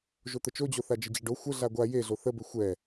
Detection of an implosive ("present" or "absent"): absent